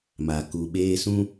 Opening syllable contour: low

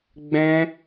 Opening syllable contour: high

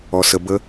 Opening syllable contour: low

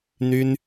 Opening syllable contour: high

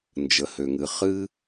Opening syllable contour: low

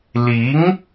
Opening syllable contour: rising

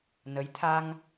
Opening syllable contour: rising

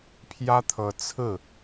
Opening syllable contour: high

